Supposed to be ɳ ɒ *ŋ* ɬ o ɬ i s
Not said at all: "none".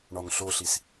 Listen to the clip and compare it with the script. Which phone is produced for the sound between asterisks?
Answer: ŋ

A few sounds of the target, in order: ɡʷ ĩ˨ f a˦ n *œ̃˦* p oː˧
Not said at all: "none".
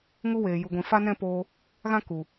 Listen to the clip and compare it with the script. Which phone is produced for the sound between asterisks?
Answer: ɛ̃˦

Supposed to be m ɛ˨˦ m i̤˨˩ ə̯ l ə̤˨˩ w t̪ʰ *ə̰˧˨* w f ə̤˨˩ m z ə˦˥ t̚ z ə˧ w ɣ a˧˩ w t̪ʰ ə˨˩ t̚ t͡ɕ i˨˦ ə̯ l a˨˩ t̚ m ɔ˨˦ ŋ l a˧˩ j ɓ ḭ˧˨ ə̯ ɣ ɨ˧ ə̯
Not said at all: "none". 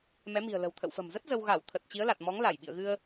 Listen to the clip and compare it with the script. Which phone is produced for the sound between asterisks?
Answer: ə̰˧˨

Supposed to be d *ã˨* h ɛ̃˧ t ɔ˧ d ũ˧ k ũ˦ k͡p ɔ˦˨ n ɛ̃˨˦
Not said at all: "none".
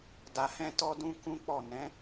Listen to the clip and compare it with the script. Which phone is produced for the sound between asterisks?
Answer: a˨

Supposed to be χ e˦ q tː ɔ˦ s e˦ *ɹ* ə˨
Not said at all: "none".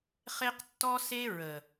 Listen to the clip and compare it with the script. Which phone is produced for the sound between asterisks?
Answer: ɹ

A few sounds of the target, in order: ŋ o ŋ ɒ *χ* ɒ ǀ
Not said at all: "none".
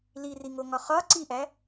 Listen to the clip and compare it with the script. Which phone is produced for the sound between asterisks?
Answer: χ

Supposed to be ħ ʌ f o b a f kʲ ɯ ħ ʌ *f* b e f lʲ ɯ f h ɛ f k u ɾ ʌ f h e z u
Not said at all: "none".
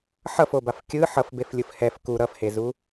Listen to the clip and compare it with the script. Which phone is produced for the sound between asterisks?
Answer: f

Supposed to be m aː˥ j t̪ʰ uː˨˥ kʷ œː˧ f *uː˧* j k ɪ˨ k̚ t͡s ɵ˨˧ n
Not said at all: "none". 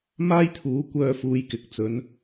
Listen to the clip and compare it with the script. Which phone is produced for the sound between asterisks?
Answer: uː˨˧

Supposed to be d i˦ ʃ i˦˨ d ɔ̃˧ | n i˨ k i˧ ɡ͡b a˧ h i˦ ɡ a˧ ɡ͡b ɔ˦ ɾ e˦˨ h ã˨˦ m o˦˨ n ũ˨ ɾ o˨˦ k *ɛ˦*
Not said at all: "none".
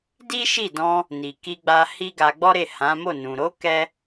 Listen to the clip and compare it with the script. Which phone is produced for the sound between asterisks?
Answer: ɛ˦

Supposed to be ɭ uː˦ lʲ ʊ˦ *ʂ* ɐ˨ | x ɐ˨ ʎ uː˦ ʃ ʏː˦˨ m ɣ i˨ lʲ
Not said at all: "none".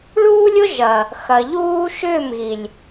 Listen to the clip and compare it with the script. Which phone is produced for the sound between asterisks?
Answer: ʒ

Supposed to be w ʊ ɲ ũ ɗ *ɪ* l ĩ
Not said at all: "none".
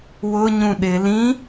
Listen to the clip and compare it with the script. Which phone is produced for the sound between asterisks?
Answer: ɪ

